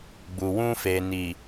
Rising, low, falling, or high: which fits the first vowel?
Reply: low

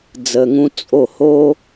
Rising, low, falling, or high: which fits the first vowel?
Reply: low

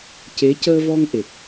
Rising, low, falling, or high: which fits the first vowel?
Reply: rising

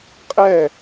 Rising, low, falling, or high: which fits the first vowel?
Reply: falling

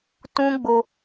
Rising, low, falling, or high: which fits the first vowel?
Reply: high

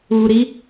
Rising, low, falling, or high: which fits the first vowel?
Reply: low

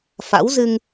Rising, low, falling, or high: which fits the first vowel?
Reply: rising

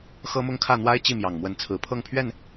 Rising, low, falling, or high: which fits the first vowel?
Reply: high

